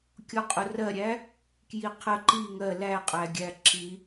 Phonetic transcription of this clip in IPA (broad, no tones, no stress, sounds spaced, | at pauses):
kʲ ɔ qʼ ʊ r ɜ ɾʲ æ | k j i qʰ ə ǃ i ŋ ɜ l æ qʼ æ ɡʲ æ ǁ i